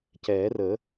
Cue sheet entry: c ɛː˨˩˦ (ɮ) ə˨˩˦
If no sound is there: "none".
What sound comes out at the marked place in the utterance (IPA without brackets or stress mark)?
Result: r